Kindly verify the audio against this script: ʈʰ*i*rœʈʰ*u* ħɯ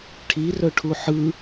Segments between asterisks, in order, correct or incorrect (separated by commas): correct, correct